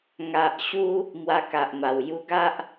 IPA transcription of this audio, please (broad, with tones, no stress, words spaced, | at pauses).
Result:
ŋa˨ʔɕu˧ | mwa˧ka˨ʔma˨˩w ju˧ɡa˦ʔ